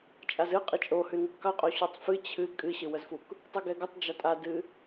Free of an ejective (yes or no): no